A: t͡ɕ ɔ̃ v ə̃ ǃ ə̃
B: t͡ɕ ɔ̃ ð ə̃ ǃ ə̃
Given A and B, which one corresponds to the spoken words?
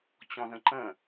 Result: B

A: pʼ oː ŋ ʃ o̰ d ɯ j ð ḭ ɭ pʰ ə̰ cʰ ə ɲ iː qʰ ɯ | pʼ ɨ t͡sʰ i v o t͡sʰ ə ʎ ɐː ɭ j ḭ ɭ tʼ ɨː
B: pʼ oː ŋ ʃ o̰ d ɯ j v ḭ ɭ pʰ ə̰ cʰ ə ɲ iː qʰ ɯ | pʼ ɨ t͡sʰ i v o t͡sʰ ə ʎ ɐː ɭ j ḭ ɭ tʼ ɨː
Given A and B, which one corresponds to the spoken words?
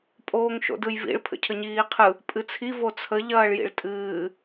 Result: B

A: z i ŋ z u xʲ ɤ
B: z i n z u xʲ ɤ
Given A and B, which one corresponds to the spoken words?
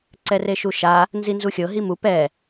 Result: B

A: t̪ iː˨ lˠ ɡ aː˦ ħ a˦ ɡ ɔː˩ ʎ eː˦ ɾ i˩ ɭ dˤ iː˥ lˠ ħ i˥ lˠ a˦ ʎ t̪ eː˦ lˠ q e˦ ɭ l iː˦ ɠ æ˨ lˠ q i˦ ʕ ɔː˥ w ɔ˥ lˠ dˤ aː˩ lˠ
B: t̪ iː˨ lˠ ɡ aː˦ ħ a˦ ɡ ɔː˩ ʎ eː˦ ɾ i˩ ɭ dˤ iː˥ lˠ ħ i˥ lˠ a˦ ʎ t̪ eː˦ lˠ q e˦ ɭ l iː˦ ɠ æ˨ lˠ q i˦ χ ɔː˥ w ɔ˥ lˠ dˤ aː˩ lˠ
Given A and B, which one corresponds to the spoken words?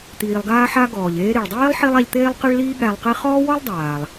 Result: B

